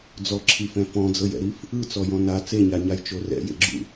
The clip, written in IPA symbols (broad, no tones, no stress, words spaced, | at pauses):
d͡zɔǁʰifɛ̃ fɔ̃d͡zɤjɛ̰ɾif | ɯt͡sɔjɔ̃ na t͡seɲaɲajt͡ʃo rɛ̰jḛɡ͡ǁṵ